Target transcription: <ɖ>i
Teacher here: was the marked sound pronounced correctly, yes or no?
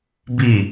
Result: no